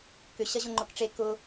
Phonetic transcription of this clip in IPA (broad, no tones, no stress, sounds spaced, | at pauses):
k ʏ ɕ ɐ ʑ ʊ ŋ͡ǃ ʊ k ʈ͡ʂ e k ʊ